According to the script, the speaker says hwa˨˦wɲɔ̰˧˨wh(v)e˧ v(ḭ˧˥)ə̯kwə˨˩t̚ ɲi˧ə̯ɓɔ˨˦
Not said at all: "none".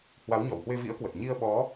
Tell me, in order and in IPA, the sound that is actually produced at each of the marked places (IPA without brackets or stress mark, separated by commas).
w, ḭ˧˥